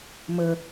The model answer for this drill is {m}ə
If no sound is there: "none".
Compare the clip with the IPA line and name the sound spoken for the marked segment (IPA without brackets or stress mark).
m